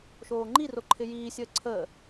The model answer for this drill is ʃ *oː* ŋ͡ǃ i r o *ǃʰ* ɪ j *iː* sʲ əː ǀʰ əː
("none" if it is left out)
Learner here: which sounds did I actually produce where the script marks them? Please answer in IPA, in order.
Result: oː, ǃʰ, iː

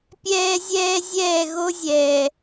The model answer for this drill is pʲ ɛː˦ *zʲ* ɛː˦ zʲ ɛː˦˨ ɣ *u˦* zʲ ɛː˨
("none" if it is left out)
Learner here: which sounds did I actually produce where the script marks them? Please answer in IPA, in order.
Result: zʲ, o˦

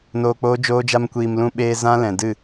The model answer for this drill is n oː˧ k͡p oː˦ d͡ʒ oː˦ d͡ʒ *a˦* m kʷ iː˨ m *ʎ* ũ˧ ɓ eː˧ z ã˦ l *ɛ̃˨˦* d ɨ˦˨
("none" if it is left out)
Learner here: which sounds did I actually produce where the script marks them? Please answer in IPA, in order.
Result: a˦, l, ɛ̃˨

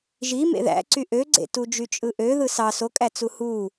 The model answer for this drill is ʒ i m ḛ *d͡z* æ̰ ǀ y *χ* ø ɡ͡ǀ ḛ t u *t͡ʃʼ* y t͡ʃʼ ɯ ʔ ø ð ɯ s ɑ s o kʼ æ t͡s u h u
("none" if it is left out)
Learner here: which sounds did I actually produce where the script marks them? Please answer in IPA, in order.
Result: ð, ʔ, d͡ʒ

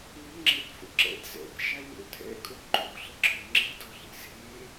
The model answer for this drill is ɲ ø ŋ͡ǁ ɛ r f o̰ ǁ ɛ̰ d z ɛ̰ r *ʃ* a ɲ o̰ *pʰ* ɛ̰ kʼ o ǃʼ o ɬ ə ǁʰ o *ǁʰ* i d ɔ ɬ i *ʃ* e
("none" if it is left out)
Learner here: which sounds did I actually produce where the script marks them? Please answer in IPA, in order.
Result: ʃ, tʰ, ŋ͡ǁ, z

